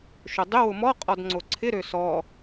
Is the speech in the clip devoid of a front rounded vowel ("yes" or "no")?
no